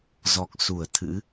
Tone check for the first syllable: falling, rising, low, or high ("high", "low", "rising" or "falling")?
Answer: low